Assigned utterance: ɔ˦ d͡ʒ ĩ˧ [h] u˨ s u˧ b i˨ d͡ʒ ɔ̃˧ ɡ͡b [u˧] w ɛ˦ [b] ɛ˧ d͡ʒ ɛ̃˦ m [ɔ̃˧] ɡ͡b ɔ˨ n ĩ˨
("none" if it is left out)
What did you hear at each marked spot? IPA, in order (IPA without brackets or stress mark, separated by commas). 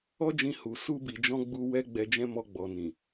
h, u˧, ɡ͡b, ɔ˧